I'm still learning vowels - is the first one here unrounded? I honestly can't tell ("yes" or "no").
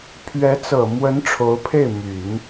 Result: yes